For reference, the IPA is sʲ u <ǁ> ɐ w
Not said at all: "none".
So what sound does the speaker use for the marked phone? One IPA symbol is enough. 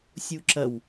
ǁ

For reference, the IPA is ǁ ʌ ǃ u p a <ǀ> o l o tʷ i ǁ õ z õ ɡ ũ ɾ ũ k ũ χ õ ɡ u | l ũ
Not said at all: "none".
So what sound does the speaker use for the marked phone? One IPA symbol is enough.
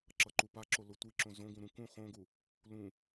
ǁ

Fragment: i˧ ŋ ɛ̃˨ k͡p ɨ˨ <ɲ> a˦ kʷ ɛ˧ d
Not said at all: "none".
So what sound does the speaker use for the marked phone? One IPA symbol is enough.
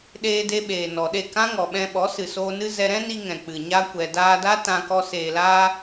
ɲ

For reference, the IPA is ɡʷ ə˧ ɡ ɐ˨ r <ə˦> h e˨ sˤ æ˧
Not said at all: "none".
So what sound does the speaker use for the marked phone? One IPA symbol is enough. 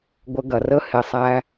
ə˦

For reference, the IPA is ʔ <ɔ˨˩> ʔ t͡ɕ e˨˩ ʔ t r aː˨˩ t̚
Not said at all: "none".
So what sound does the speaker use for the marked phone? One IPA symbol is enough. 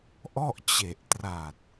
ɔ˥˩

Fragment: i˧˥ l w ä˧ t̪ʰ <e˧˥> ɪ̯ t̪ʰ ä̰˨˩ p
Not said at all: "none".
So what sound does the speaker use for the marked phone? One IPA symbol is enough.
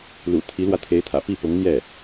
e˧˥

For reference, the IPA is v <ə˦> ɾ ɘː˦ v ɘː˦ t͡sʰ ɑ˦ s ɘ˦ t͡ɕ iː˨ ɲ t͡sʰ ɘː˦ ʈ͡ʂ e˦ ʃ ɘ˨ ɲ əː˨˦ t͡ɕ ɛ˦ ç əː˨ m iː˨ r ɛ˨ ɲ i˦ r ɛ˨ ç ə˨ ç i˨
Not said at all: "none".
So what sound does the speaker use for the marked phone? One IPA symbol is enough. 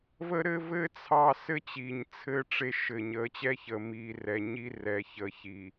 ə˦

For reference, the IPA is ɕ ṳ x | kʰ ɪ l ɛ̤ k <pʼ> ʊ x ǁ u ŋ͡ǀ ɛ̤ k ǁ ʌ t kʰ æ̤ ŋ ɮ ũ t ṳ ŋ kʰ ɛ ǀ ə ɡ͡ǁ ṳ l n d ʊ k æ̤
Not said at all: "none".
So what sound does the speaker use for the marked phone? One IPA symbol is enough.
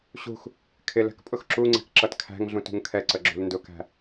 pʼ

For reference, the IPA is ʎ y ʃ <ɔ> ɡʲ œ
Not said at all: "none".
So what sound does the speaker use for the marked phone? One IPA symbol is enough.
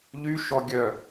ɔ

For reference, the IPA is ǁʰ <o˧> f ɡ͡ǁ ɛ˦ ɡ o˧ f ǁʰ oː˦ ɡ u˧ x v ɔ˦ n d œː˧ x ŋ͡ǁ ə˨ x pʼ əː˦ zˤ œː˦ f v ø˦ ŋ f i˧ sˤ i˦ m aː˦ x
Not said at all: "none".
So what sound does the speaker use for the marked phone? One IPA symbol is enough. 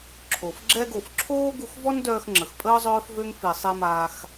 o˨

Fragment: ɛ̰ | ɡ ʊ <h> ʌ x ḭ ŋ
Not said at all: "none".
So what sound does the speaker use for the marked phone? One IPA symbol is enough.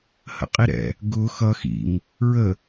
x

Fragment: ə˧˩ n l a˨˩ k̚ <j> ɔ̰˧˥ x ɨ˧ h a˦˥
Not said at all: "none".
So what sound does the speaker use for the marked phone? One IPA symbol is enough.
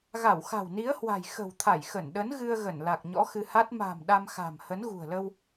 ɲ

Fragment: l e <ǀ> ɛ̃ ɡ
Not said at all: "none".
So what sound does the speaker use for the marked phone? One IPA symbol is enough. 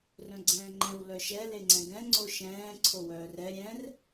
ŋ͡ǀ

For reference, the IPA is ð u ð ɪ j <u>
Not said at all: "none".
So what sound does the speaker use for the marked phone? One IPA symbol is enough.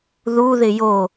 o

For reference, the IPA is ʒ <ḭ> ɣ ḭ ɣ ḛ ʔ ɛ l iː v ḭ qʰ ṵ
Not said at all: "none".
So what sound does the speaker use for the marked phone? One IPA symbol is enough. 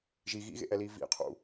i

